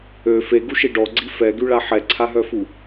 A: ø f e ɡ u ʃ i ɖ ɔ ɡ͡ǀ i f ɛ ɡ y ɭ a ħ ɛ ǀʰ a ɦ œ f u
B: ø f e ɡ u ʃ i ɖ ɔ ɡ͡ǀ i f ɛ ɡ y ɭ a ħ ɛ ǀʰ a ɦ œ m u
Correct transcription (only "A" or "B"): A